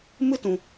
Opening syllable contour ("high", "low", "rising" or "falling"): high